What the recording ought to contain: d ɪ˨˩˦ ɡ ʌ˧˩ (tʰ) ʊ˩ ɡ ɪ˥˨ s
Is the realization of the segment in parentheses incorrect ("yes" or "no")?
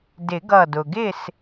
yes